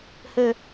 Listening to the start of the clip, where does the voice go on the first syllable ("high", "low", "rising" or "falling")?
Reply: low